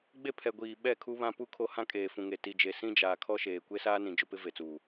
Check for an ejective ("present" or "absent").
present